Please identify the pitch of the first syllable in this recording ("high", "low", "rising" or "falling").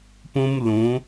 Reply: high